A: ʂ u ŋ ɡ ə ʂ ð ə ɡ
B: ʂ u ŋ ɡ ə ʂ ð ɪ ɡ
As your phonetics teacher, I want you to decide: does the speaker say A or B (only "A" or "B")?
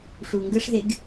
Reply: B